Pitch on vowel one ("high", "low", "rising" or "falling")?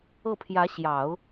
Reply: falling